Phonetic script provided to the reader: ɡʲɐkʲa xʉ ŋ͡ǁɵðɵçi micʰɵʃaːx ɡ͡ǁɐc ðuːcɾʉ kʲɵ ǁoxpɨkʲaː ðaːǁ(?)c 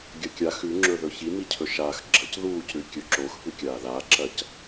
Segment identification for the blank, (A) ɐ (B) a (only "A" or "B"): A